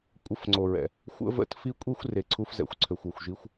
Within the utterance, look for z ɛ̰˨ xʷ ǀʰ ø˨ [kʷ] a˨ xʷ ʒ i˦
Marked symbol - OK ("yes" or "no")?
no